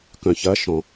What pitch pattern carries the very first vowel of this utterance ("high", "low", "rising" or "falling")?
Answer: low